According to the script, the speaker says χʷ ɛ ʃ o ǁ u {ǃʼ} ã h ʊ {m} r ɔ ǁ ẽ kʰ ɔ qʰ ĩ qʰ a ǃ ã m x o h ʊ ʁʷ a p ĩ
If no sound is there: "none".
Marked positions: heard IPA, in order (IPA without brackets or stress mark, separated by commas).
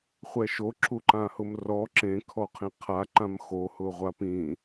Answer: ǃ, m